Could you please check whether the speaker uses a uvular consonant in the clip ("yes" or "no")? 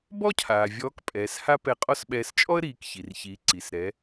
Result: yes